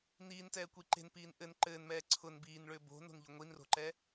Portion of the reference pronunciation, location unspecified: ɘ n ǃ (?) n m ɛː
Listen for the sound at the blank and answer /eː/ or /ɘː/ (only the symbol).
ɘː